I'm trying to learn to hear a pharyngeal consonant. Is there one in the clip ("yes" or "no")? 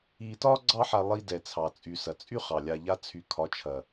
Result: yes